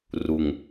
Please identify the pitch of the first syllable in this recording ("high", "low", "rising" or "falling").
low